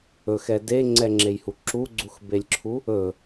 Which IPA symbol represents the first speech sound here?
ɵ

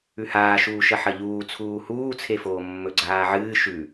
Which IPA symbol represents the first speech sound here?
ʉ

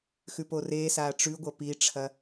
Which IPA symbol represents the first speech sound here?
x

